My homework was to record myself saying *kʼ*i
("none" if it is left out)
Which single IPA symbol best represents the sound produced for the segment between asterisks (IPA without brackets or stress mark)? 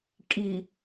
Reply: kʼ